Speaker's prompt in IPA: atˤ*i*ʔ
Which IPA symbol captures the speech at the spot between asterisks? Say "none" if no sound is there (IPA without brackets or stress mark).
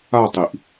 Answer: i